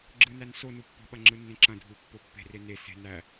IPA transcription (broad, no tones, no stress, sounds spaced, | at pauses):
ɡ͡ǁ ɯ n æ n s o n u pː ɔ̤ ɓ ɐ ŋ͡ǁ ɯ nː ẽ ǁ ɐ̃ dʱ u pː o pː e̤ r e n e s e̤ n æ